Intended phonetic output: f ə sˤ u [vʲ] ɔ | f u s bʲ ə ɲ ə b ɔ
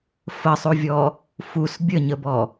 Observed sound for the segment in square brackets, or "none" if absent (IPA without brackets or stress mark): vʲ